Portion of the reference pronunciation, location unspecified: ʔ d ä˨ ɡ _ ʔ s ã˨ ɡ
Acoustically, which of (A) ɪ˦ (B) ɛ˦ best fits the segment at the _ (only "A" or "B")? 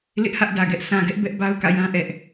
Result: B